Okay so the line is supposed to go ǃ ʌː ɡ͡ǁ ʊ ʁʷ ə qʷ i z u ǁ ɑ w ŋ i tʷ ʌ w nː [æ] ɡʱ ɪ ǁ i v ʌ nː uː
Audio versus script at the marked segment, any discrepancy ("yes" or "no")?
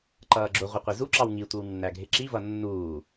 no